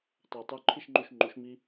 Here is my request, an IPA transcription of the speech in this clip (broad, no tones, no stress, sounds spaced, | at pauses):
tˤ ɛ tˤ u ǃʰ i ʃ ŋ͡ǃ u ʃ ŋ͡ǃ u ʃ m i